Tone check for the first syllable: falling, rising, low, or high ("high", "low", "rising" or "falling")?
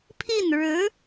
falling